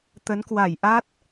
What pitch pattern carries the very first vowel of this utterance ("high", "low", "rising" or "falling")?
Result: rising